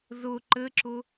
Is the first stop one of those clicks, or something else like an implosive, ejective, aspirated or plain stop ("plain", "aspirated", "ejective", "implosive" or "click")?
click